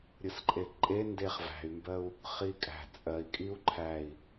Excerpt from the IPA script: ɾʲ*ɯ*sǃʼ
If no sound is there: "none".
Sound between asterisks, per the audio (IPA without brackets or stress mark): ɯ